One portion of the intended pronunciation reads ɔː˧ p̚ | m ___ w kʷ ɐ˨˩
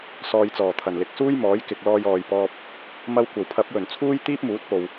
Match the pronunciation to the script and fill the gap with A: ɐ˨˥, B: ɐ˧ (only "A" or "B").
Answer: B